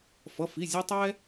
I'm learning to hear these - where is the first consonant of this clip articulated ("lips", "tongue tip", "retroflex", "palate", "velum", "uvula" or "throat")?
lips